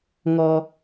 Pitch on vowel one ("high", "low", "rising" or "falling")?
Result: low